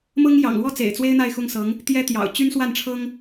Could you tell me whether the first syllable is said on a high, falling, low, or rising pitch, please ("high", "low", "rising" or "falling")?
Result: high